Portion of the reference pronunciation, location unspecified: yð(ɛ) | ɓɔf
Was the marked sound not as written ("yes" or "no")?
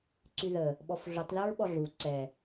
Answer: yes